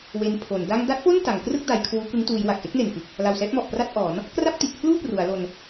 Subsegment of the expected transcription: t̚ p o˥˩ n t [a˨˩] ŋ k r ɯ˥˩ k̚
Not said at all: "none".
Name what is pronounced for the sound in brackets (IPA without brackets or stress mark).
a˩˦